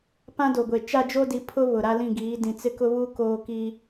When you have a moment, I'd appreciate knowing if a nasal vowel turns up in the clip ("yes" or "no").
yes